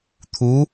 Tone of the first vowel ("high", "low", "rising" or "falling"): rising